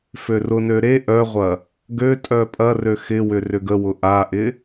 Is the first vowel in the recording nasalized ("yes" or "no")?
no